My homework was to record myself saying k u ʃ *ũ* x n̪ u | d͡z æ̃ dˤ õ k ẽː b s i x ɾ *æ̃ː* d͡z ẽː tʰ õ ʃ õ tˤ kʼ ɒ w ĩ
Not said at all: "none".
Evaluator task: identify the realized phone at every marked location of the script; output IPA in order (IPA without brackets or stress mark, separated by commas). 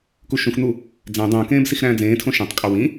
ũ, æ̃ː